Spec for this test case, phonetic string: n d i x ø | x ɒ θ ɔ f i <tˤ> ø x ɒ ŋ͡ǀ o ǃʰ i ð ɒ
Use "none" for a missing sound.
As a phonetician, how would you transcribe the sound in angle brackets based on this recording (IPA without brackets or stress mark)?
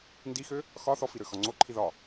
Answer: ɾ